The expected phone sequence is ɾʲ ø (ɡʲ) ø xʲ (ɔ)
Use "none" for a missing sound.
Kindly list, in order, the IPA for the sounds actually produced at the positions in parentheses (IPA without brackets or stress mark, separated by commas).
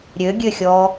ɡʲ, ɔ